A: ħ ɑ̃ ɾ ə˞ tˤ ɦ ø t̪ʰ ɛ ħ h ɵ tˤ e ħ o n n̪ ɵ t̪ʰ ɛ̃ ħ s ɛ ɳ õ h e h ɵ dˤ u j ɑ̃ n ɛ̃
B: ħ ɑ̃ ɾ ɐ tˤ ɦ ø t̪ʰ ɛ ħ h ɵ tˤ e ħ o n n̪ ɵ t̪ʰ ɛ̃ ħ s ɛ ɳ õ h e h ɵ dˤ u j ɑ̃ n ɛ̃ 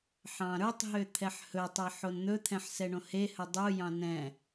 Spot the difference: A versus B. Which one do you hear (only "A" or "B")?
A